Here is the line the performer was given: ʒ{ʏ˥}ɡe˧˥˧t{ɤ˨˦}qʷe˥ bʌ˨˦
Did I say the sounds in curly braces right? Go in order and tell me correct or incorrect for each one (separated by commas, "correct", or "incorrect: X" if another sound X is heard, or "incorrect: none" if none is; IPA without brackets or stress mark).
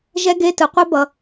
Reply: incorrect: ɛ˥, incorrect: ɯ˨˦